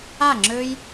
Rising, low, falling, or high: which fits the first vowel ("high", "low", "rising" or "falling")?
falling